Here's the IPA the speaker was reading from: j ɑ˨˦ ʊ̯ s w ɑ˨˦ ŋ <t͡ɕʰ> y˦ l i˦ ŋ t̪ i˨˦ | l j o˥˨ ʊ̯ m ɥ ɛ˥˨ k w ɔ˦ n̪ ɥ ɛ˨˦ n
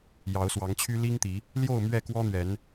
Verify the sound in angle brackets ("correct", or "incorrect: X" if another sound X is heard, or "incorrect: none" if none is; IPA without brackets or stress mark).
correct